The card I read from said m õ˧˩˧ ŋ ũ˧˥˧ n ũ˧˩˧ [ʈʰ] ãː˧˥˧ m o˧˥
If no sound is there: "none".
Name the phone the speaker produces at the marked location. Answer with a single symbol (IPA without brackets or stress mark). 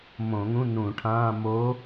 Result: ʈʰ